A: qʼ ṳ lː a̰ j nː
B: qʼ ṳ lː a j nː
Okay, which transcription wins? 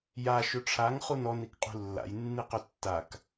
A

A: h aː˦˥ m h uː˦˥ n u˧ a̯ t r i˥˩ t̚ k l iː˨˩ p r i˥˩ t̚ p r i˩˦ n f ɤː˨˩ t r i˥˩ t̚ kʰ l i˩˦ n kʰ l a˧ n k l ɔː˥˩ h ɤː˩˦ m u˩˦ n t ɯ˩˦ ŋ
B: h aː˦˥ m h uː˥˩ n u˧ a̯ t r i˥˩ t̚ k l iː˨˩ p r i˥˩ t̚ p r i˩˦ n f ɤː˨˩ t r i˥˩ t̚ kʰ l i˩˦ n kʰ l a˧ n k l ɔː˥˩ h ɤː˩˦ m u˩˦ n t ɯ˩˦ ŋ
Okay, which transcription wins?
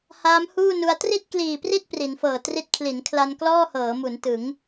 B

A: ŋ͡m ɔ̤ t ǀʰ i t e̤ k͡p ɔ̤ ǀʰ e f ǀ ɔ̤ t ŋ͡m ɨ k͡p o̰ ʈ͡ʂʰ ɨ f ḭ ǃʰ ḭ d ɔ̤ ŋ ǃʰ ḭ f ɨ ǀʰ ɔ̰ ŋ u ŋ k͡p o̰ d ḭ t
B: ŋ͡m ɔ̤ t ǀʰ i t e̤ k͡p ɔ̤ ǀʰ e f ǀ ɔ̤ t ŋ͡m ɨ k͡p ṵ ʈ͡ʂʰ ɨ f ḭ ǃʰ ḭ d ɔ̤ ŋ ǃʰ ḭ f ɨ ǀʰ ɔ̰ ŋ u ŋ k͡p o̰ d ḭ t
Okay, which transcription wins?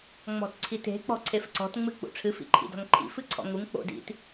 B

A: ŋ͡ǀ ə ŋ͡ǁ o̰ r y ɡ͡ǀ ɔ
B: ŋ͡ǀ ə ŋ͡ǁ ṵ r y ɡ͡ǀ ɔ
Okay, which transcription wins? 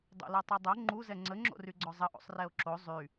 A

